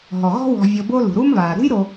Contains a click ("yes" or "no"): no